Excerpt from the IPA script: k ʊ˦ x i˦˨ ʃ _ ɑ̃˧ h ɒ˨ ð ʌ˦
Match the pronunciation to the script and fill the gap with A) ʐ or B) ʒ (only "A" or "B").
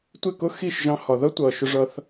B